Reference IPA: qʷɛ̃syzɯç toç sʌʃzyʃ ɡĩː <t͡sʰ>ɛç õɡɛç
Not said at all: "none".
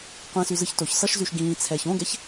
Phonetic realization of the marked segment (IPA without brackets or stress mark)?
t͡sʰ